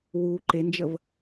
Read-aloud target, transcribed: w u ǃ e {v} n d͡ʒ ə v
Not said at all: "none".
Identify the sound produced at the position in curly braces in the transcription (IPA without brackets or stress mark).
none